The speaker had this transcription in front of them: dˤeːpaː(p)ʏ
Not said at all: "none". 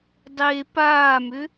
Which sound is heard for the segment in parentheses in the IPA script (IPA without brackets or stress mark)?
m